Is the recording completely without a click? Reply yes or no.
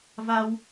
yes